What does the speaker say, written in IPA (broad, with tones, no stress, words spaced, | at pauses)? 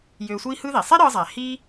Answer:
jøː˧sʷiː˥hɯ˥ði˩ sˤe˥ ɾɯː˧zˤæ˩ hi˧